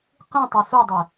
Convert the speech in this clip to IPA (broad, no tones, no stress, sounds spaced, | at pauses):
q ĩ tˤ u s u dˤ e